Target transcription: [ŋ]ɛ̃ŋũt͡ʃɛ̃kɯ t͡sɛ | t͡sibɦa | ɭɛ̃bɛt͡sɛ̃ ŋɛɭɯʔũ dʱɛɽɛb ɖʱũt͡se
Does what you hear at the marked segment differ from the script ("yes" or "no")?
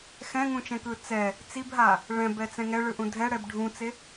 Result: yes